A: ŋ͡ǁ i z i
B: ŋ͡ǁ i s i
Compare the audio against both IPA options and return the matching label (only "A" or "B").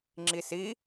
B